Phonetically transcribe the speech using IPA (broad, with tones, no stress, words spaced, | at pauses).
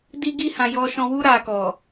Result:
di˦ɡi˦ hã˧ jɔ˧ʃɔ̃˧wu˦ ɾa˧kɔ˨